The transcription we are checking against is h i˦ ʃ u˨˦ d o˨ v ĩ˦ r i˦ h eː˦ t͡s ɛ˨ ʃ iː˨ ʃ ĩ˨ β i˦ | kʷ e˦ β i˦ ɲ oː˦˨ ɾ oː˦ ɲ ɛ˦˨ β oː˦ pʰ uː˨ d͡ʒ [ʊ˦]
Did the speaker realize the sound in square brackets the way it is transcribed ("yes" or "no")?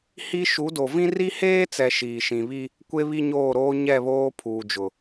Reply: no